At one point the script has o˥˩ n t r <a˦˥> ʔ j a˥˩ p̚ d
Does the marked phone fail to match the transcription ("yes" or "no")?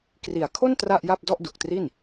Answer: yes